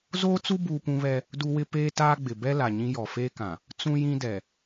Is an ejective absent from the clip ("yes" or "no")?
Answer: yes